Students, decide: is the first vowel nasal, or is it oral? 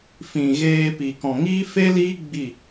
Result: nasal